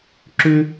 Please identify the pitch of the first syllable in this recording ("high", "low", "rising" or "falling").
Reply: high